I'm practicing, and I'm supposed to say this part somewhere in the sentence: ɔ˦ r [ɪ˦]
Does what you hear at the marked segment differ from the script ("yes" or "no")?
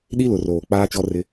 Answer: no